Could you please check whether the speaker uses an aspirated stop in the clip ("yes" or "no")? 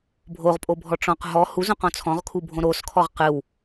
yes